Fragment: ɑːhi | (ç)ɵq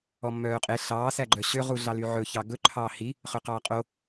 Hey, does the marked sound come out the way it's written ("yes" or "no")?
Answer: no